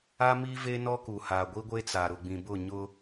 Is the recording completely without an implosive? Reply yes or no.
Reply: yes